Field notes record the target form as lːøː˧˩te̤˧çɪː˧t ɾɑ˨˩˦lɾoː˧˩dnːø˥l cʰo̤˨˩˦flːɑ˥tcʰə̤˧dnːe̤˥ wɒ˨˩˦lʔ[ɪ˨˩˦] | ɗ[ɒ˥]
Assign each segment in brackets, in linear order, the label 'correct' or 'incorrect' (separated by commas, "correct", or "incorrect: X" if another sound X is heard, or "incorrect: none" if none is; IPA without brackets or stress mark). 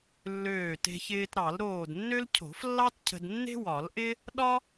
incorrect: ɪ˥, correct